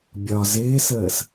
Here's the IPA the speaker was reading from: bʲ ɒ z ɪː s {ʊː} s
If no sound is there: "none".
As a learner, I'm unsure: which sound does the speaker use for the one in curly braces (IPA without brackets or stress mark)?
əː